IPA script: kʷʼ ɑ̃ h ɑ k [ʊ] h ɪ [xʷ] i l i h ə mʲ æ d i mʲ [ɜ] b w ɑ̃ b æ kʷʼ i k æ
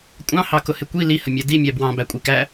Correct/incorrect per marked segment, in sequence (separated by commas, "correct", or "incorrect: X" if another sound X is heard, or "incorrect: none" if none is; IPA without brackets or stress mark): correct, incorrect: kʷ, incorrect: æ